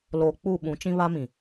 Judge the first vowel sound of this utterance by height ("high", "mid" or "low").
mid